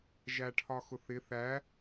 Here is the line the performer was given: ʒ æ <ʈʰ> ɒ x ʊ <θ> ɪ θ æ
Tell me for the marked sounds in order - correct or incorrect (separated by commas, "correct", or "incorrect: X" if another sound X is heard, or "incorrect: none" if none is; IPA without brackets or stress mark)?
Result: correct, correct